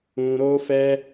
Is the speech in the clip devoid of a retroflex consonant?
yes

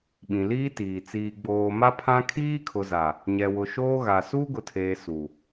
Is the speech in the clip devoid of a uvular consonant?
yes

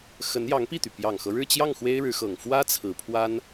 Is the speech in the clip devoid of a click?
yes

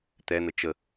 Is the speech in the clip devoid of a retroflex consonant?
yes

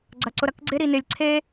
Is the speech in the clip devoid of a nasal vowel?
yes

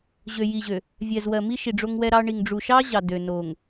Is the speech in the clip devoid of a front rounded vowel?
no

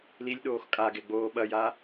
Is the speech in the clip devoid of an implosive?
no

